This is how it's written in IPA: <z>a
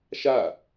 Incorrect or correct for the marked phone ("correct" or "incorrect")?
incorrect